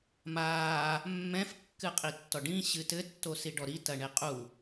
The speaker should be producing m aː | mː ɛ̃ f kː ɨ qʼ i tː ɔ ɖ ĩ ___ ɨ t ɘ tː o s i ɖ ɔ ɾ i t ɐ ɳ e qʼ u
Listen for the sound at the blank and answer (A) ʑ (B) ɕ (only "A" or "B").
B